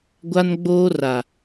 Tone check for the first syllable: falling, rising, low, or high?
high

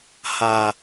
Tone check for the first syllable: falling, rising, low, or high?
high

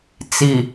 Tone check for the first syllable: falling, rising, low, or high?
low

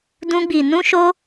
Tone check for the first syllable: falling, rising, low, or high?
high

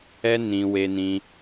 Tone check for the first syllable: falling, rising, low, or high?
high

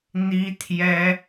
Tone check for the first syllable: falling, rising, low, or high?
high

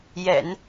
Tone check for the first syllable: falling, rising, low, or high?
low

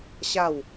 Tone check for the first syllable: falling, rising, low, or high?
falling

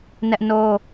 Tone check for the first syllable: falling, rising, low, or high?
high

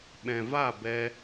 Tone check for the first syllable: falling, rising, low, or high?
low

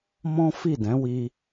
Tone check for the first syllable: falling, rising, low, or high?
high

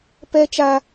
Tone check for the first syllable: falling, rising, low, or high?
high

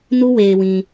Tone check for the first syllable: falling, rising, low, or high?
high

